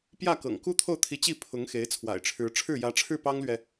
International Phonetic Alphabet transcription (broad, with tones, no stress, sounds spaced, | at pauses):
p j ä˥˩ k ɤ̰˨˩ ŋ k u˥ t̪ʰ o˥˩ ʊ̯ t̪ʰ i˧˥ t͡ɕ i˥˩ pʰ ʊ˧˥ ŋ x e˧˥ ɪ̯ t͡sʰ w a̰˨˩ ɪ̯ ʈ͡ʂʰ ɻ̩˧˥ ʈ͡ʂʰ ɻ̩˥˩ j ä˧˥ ʈ͡ʂʰ ɻ̩˥˩ p ɑ˥ ŋ l ɥ ɛ˨